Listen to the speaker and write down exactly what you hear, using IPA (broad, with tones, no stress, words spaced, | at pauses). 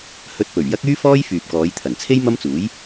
hɵ˧t̚pɵ˨˩ɥ jɐ˥k̚yː˥fɔː˥j fyː˨p̚kɔː˨˧j t̪ʰɐ˨˩nt͡sʰe˥j mɐ˥mt͡suː˨˥j